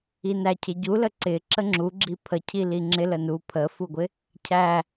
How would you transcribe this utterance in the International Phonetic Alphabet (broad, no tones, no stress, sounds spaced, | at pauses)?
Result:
i n æ cʰ ɪ ɟ u l ə ǀ ɪ ǁ ə ŋ͡ǁ u ɡ͡ǁ i pʰ ə cʰ i l i ŋ͡ǁ ɪ l ə n u pʰ ə f u ɡʷ ɪ | cʰ æ